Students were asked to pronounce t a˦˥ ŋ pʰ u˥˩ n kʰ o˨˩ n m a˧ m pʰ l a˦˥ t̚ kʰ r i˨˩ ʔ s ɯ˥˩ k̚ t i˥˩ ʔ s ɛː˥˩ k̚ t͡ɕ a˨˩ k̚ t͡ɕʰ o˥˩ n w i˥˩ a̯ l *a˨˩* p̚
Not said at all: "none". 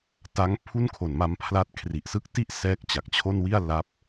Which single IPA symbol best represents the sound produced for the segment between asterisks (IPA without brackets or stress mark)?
a˦˥